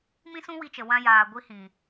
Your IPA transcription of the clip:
m ĩ˦ s ũ˦ w i˧ t͡ʃ ə˨ w ã˧ j aː˨ ɡʷ i˧ h ĩ˨

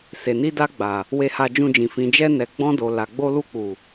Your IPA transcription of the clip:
s e˨ n i˧ d a˧ ɡ͡b a˨ | w e˧ h a˧ d͡ʒ ũ˧ d͡ʒ ĩ˨ f ĩ˨ d͡ʒ ɛ˧ n ɛ˨ ɡ͡b ɔ̃˧ d o˨ l a˨ ɡ͡b o˧ l u˧ k͡p u˨

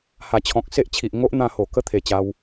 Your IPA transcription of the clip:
h a˨˩ t͡ɕʰ ɔ̃˨ k̚ s e˦ ʔ t͡ɕʰ i˨ ʔ ŋ o˦ ʔ n̪ ã˧ h o˨˩ k ə˦ t̪ʰ e˨˩ t͡ɕ a˧ w

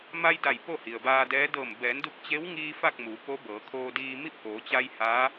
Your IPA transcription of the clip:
m a˧ j d a˧˩ j p o˥˨ h i˩ ə̯ b aː˧ d ɛː˧˥ d ɤː˧˩ m b ɛː˩˧ n d u˧ k̚ t͡ɕ e˧˥ w ŋ iː˧ f a˥˨ k̚ m u˩˧ p o˧˥ b ɤː˩˧ kʰ oː˧ d iː˧ m i˥˨ p̚ ʔ oː˩˧ t͡ɕ a˧ j h aː˧˥

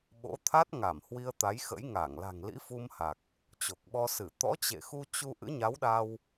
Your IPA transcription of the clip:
ɓ o̰˧˥ t̪ʰ a˦˥ t̚ ŋ a˧˩ m h w i˧ ə̯ t̪ a˨˦ j x ə̰˧˥ j ŋ a˧˩ ŋ l a̤˨˩ ŋ l ḭ˧˥ f u˧ m h a˨˩ k̚ | t͡ɕ o˨˩ k̚ ɓ ɔ˧ s ɨ˧˩ t̪ ɔ̰˧˥ t͡ɕ ḛ˧˨ x u˧ t͡ɕ u˧ ʔ ɨ̰˧˥ ɲ a˨˦ w ɗ a˧ w

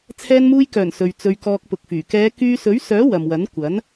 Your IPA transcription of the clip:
t͡sʰ ɛː˧ n m uː˧ j k œː˨˩ n s ɵ˨ ɥ t͡s ɵ˧ ɥ k ɔː˧ k̚ p ʊ˨ k̚ f yː˨˩ k ɛː˨˧ k yː˧ s ɵ˨˥ ɥ s œː˨˥ w ɐ˨ m w ɐ˨˥ n kʷ ɐ˨˥ n

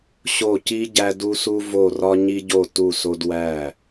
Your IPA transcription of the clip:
ɕ o˧˩ c i˧ ɟ æ˧ d u˧ s u˧ v o˧˩ r ɒ˧ ɲ i˧ ɟ o˧˩ t u˧˩ s o˧ d w æ˧˩

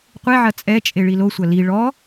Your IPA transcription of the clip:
qʷ e ʕ ɐ t͡sʼ ɛ t͡ʃʼ e ɭ i l o sʷ ɐ l i ɭ ɔ

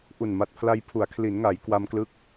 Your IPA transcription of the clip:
ʔ u˨˩ n m a˨˩ t̚ pʰ l a˧ j pʰ u˩˦ a̯ kʰ l i˩˦ n ŋ a˩˦ j k w a˧ m k l ɯ˦˥ k̚

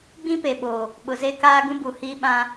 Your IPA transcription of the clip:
ɡ͡b ĩ˦ p e˨ ɓ oː˨ | ɓ ʊ˨ z e˦ k aː˦ ɡ ũ˦ b u˨ h iː˦ ɓ ã˦

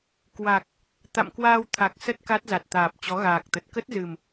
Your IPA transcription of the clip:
k w a˨˩ k̚ | t̪ a̰˧˨ m k w aː˧ w t̪ʰ a˨˩ k̚ s ə˦˥ t̚ k a˦˥ t̚ z a˨˩ t̚ t̪ aː˨˩ p̚ t͡ɕ ɔ˨˦ ɣ aː˨˩ k̚ t̪ ə˨˩ t̚ k ə˦˥ t̚ z ɨ˨˩ m

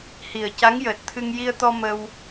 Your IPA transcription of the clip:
h i˨˩ ə̯ c a˧˥ ŋ j əː˨˩ t̚ t̪ʰ ɨ˧ ŋ j i˧ ə̯ t̪ ɔ˧ m ə˧ w

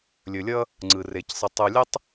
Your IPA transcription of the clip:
lʲ ɵ˩ lʲ ʌ˦ | ŋ͡ǀ ɯ˩ r e˩ c sˤ ɘ˨ tˤ u˨ lʲ ə˥ tˤ

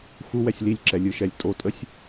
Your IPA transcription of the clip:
x u w ɛ sʲ l i lʲ ǁ ɛ lʲ ɯ ʃ ɛ lʲ tʼ o tʼ ə sʲ

